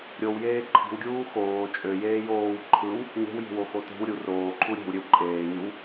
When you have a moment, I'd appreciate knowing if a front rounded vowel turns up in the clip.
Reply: yes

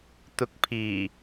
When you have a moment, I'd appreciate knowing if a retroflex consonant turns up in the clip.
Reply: no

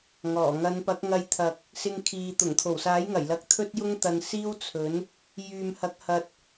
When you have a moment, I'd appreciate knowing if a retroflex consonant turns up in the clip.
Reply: no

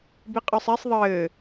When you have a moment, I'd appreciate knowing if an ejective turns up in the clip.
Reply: yes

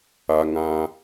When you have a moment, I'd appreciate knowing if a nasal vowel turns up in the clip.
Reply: yes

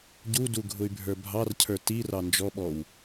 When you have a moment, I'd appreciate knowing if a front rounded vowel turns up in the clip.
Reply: yes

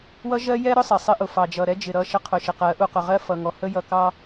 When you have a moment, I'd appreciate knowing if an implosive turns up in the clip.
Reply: no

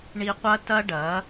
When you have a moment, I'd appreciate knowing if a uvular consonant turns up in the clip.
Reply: yes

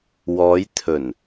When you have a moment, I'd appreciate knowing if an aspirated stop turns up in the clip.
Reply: yes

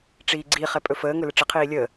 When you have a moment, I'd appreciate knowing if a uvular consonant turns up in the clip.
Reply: yes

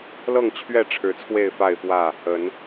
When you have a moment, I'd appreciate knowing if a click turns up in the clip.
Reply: no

